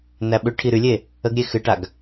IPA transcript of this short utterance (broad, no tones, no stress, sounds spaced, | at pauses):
n æ ɓ ʏ ʈʰ i ɾ y lʲ e | ə ɡ ɾʲ e x ɨ ʈ a ɡ